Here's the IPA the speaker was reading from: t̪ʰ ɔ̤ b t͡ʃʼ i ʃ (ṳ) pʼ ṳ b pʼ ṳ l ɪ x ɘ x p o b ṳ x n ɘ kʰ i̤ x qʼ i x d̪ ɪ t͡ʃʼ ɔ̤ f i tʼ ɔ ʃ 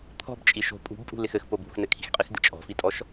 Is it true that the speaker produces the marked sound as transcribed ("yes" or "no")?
no